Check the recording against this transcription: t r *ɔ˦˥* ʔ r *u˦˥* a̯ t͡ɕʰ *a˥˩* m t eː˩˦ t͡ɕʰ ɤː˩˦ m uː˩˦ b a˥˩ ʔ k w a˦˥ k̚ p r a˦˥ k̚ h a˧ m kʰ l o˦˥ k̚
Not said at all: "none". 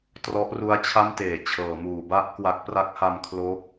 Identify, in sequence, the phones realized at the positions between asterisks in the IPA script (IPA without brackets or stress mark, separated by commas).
ɔ˦˥, u˦˥, a˥˩